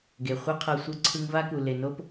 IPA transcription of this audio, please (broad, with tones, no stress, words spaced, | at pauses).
ɡe˩χʷɛ˥qʰɤ˧ sʷɯ˧ǀʰɯ˧ŋva˥ku˩ le˩no˥p